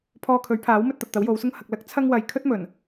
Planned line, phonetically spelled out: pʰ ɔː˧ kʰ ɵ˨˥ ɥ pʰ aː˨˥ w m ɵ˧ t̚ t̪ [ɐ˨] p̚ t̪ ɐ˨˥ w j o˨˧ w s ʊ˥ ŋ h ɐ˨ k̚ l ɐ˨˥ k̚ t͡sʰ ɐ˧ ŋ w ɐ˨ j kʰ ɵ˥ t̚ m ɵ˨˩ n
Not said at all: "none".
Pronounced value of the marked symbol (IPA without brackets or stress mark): ɐ˨